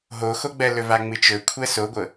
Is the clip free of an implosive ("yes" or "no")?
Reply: yes